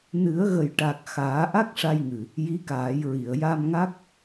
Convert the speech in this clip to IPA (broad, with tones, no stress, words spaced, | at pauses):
nɨ˨˩˦ə̯ɣə˨˩jʈa˨˩k̚ xaː˨˩˦ʔa˦˥k̚ʂa˧jŋɨ˨˩ | ji˧˥kaː˨˩˦jɹi˨˩˨ə̯ ja˧mŋa˦˥k̚